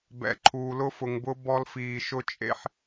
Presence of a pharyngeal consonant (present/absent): present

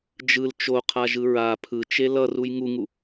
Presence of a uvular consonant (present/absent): present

